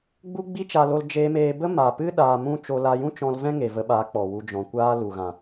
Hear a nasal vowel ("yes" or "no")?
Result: yes